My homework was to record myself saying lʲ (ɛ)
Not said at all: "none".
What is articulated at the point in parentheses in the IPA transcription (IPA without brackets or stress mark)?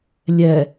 ɛ